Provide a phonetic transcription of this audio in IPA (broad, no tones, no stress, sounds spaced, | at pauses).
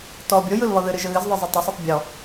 t ɔ bʲ o j ɯ l β ɔ ð ɨ ɾ ɨ ʒ ə ɣ ɨ z ðˤ ɯ zˤ ə tˤ ə sˤ ɯ tˤ bʲ ɔ